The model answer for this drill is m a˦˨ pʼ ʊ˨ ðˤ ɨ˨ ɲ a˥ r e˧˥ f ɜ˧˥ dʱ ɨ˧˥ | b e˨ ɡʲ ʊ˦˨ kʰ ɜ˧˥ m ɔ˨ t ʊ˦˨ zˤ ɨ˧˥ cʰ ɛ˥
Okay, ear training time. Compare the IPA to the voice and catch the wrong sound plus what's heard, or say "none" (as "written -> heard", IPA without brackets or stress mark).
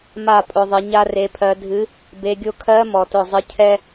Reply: f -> pʰ